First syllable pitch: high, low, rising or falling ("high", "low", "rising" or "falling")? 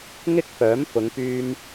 high